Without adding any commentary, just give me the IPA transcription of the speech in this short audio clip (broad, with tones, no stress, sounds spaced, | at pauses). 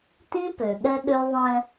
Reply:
t ĩ˦ p ø˨ ɠ ɛ˦ ɠ ø˦ ðˤ ɛ̃˦